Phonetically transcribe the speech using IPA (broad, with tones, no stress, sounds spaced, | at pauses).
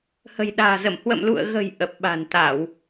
h ə̤˨˩ j ɗ a̤ː˨˩ z ə˧˩ m h w ə̰˧˨ m l ṵ˧˨ ə̯ ɣ ə̤˨˩ j ʔ ə˨˩ p̚ ɓ a̤˨˩ n t̪ a˧˩˨ w